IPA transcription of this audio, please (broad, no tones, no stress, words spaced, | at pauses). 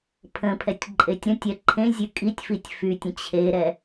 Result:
pʰə̃pʰɛtʲ ǃʼetʲɾə̃tʲɛ ǃʰẽzʲʉ kʼitʲfitʲ fytʲə̃ t͡ɕʰeɾɛ